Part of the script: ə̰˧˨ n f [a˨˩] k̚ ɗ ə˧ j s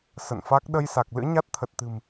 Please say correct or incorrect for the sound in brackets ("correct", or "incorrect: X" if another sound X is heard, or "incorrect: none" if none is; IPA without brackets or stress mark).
incorrect: a˦˥